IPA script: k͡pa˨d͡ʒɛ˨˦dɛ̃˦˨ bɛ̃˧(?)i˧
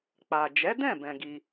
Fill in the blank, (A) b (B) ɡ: B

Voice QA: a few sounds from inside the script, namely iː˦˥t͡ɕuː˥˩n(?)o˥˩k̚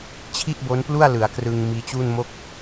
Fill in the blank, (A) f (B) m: B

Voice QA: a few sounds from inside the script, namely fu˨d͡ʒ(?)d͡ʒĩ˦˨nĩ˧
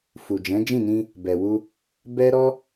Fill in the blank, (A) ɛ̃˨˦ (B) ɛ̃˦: A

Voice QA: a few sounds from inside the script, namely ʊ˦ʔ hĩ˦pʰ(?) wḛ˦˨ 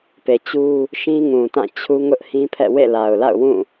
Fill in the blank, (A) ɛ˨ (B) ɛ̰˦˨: B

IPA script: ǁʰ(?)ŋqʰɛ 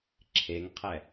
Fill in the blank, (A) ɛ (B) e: B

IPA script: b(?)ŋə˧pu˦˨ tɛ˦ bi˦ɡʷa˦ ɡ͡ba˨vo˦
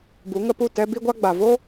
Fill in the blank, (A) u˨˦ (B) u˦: A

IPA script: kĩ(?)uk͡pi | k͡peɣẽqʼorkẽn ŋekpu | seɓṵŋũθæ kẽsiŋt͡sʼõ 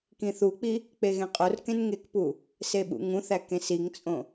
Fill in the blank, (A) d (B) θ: B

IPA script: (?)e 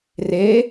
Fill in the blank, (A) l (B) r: B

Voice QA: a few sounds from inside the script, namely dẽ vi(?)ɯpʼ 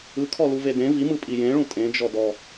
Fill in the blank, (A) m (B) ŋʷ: A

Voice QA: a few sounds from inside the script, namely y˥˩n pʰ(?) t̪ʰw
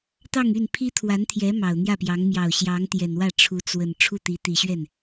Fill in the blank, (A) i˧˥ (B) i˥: B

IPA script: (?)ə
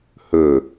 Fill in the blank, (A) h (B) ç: A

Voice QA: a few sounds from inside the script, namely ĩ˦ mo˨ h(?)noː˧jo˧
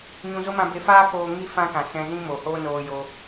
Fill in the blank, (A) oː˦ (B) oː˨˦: A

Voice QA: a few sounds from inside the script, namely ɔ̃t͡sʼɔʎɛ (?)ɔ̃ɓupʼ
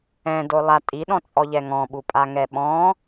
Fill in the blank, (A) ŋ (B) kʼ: A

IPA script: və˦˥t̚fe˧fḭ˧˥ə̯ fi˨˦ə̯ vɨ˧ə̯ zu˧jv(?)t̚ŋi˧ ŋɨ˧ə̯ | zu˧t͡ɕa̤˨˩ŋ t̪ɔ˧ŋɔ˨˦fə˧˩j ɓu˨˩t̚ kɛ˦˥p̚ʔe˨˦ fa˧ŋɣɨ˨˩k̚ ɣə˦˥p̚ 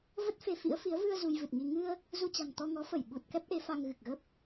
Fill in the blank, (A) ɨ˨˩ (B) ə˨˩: A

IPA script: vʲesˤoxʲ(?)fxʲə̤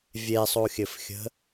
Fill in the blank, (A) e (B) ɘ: B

